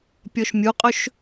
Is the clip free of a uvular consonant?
no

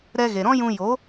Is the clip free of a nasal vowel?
no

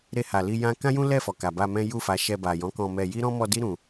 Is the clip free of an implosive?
yes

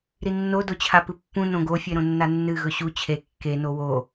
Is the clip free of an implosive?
yes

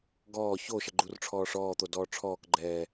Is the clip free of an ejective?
yes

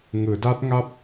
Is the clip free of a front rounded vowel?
yes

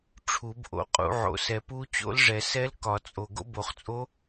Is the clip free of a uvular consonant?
no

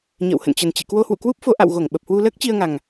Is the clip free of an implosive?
no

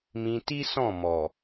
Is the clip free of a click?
yes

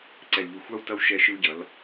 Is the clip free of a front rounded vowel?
yes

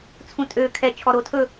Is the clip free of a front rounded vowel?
no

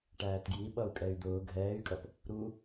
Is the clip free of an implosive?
no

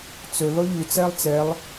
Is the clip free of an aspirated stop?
yes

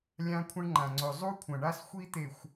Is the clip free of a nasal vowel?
no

